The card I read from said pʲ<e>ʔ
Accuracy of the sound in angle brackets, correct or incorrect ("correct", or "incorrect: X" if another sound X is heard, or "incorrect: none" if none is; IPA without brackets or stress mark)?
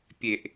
correct